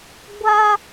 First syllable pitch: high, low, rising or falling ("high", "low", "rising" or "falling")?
high